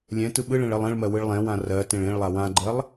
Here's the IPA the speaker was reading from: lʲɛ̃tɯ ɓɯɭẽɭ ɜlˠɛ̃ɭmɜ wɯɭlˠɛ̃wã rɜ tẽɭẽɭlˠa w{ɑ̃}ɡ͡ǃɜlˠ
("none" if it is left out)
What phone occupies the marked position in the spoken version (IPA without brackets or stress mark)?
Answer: ã